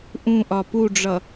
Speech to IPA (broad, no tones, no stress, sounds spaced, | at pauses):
ʔ ũ ʔ ɒ p u ɖ͡ʐ ʌ